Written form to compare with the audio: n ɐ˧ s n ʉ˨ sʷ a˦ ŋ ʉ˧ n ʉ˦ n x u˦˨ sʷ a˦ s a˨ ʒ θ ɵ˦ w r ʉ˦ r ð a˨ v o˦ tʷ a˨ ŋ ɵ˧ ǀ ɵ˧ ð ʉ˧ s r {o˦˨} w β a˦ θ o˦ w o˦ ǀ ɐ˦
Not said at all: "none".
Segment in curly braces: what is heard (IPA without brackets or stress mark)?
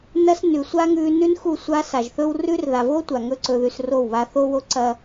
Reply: o˦˨